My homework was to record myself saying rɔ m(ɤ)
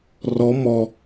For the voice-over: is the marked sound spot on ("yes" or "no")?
no